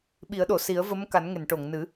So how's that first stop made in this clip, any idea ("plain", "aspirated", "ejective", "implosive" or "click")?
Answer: implosive